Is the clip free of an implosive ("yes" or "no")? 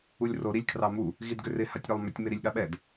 no